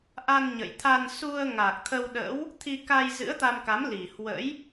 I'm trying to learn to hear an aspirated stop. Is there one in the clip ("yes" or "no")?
yes